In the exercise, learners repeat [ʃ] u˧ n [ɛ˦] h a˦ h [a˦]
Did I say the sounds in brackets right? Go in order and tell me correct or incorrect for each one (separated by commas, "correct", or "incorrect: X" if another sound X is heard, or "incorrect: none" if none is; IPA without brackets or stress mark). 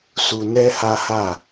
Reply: incorrect: s, correct, incorrect: a˦˨